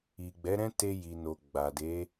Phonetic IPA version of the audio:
i˨ ɡ͡b ɛ˨˦ ɾ ɛ̃˦ t e˧ j i˨ n o˨ ɡ͡b a˨ d e˨˦

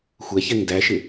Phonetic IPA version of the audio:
xʷ ɛ ç ɛ ŋ d æ ʃ ɪ

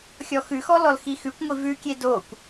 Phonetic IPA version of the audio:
xʲ ɔ x ʉ x ɔ l ɔ l x i x ʉ kʷ ŋʷ i v ʉ kʲ e d o kʷ

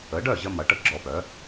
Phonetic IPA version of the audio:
ə˩˥ ɖ œ˥˩ ʑ ə˧ m ɐ˩˥ ʈ ə˥ ɡ͡ǁ ɔ˧ p œ˩˥

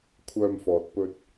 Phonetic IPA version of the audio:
kʷʰ œː˧ m f ɔː˨ t̚ p ɵ˧ t̚

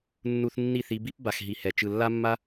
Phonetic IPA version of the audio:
nː u˧ θ nː i˦˨ θ i˧ b i˦ p b a˨ x ɦ i˨ h ɛ˨ t͡ʃ ɯ˨ lː a˦ mː a˦

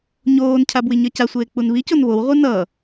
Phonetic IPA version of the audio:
ɲ oː n cʰ a b w i ɲ ʌ c a sʷ eː k͡p u n β i c o n β o w ʁʷ ɯ n ʌ

